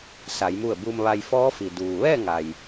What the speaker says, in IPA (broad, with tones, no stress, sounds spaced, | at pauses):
s a˩˧ j m u˧˩ ə̯ b uː˧ m ʋ a˧ j f ɔː˧˥ f i˩ d uː˩ ʋ ɛː˥˨ ŋ a˩ j